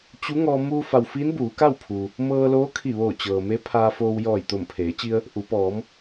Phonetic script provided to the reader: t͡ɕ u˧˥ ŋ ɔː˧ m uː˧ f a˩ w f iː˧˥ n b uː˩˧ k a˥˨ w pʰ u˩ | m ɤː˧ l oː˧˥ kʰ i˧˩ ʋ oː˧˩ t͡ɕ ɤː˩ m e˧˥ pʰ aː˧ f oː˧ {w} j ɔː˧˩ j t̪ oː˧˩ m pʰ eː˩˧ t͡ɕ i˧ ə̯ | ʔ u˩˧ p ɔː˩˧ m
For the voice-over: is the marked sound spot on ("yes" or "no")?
yes